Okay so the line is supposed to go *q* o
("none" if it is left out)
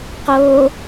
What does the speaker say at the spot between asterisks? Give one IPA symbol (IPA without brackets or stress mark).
q